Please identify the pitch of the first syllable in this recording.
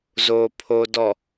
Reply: low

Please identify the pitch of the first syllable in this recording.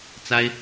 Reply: high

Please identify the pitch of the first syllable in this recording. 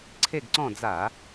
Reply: falling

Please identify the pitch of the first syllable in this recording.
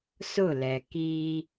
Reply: falling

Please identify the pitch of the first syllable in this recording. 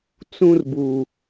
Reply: high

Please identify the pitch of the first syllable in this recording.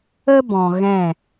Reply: high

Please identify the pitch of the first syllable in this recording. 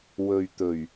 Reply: low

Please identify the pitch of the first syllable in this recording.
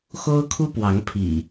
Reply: high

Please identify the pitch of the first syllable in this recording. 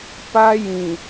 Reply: high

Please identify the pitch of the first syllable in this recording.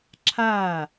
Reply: falling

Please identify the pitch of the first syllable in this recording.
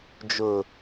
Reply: low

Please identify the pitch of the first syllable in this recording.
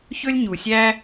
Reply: high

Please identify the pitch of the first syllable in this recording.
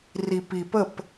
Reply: low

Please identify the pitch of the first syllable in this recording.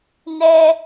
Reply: high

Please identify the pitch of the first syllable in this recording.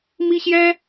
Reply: high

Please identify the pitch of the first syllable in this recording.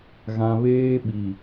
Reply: low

